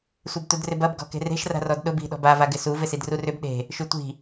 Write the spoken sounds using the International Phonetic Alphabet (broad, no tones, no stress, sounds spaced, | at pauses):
sʷ ɛ b t u d r ɪ b ɐ b ɡ ɔ̤ k e̤ r e̤ ʃ r a̤ r ɔ d ɗ ʊ b i̤ ɗ ɔ̤ b a v a ɡ ɪ s u v ɪ s i d r u r ʏ b ɗ e̤ | ʃ y tʷ i̤